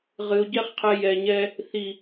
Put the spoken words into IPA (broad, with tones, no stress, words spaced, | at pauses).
ʁɨ˨o̯ɟɛ˦χqʰɛ˧ jɛ˨ɲɛ˧ | θi˨